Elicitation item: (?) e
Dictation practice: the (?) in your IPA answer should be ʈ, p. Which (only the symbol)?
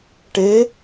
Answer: ʈ